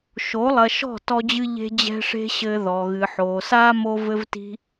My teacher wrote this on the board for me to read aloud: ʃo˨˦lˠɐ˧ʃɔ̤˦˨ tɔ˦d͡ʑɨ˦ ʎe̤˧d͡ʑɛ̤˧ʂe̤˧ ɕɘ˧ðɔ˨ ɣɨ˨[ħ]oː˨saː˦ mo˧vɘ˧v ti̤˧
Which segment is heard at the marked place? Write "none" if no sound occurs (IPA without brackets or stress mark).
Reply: ħ